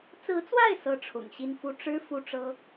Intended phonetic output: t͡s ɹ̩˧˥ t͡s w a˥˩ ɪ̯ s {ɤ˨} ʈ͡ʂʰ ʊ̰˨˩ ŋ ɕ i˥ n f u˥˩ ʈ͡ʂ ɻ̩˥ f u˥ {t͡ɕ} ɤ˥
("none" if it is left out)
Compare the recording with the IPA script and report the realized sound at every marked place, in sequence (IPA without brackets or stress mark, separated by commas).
ɤ˥, ʈ͡ʂ